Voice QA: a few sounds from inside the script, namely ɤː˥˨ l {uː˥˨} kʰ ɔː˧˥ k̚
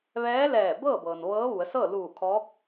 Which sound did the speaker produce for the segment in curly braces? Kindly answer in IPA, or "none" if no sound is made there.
uː˧˩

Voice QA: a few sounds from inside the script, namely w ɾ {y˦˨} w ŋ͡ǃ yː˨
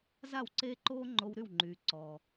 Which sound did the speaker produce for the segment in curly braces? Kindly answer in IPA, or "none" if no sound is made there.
y˦˨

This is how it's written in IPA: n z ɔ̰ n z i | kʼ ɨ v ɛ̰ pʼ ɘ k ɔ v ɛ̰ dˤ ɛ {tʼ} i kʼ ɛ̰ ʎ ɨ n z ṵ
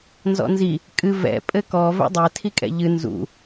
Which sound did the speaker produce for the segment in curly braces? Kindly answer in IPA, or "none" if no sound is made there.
tʰ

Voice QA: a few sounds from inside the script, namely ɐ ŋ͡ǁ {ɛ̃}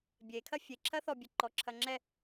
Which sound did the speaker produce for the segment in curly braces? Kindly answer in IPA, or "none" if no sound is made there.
ɛ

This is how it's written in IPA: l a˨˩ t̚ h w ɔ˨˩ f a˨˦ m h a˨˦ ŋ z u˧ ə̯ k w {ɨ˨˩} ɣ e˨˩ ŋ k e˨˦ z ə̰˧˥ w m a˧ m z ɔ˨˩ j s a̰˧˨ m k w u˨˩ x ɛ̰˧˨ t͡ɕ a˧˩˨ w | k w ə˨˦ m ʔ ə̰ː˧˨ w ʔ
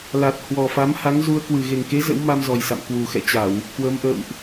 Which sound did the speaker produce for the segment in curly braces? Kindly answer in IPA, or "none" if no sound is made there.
ɨ˨˩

